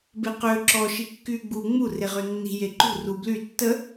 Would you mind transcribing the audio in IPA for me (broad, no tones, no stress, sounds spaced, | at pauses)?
b e q ø ǁ ɔ ʃ i kː yː ɡ͡b u ŋ͡m u r e ʁ ø nː i̤ j e ǃ ṳ r u b l y tː ə